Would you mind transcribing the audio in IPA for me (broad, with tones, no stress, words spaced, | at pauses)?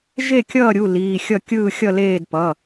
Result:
ʒe˥˩kʲʌː˥˩ɾʲu˩˧˩ liː˩˧˩xʲʌ˥˩ kʲɯː˥˩xʲʌ˥˩leː˥˩d pʌ˩˧˩